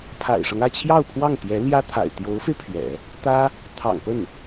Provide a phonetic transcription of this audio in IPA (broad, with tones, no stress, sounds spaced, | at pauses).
pʰ a̰˨˩ ɪ̯ ʂ ɤ˦ ŋ ä˥˧ t͡ɕʰ j ɑ˥˧ ʊ̯ pʰ w ɑ˥˩ ŋ t̪ j ɛ˧˥ l j ä˥ t̪ʰ a̰˨˩ ɪ̯ t̪ j o˧˥ ʊ̯ f e˧ ɪ̯ pʰ ɥ ɛ̰˨˩˦ | t̪ ä˥ | t̪ʰ ɑ̰˨˩ ŋ p ə˥˩ n